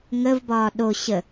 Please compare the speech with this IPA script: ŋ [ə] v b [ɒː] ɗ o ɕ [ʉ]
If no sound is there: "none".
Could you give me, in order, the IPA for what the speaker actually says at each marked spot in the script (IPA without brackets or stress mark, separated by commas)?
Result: ə, ɒː, ə